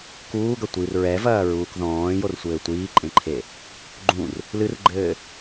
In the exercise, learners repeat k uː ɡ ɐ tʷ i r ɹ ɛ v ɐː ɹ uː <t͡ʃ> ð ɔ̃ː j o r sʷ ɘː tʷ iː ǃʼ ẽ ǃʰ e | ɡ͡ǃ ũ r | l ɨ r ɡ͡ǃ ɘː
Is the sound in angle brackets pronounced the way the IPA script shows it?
no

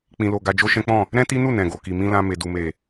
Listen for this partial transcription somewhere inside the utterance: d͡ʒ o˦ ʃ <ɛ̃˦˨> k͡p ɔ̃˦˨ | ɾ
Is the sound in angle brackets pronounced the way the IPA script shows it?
no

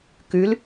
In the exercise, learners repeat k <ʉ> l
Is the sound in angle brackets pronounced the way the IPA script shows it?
yes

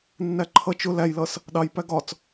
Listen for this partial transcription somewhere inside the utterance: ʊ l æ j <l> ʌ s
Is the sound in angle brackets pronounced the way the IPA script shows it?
yes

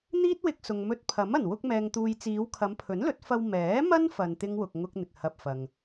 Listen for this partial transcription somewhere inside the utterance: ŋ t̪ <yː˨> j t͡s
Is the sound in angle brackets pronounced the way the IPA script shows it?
no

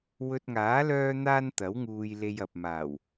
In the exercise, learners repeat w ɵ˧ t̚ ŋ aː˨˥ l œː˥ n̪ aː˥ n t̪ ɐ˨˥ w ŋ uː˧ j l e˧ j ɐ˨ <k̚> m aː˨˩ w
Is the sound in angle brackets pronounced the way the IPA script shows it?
no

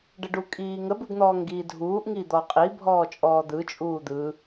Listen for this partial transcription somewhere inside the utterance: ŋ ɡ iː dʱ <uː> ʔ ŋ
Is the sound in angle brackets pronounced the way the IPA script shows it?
yes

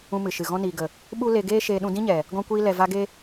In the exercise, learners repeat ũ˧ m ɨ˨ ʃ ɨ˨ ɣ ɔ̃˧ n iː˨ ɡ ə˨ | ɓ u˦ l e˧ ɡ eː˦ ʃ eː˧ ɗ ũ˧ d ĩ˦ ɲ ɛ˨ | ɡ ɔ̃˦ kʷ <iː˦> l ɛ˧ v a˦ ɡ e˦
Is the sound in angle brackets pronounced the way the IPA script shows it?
yes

